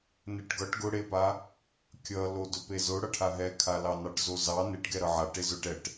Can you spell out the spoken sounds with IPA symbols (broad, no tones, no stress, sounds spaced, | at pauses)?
n e ʈ ɡ ʌ ʈ ɡ ʊ ɽ e p a | kʲ ʌ l o d ɵ p e z ʊ ɽ ʌ ʈʰ a ɦ ɛ kʰ a l ɑ n ɑ ʈ z o z ɑ n e ʈ ɡ ɛ ɾ ʌ ʕ a ʈ e z ʊ ʈ ɛ ʈ